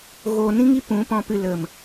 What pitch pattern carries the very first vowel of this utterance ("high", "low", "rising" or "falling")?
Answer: low